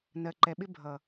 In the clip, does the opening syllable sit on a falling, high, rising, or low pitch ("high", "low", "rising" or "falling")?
low